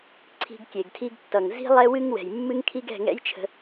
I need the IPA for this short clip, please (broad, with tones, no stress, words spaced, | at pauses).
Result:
ǀʰi̤˧ɡkʲe˨ɡtʰi˧ɡtːʌ˨ŋ zi̤˦lˠɛ˦wɨ˦ŋ wɛ̤˨jmːɨ˧ŋkʰi˧ɡ ɛ̤˦˨ŋɛ̰˦jt͡ʃʰə̤˧